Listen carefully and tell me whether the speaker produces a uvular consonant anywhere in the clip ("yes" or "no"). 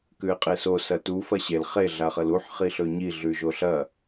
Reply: yes